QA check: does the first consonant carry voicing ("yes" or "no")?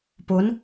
no